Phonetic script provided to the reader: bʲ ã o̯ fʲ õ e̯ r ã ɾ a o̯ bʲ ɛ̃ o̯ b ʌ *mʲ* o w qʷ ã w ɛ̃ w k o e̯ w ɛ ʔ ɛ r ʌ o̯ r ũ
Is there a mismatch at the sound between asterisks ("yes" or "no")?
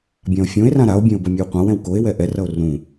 no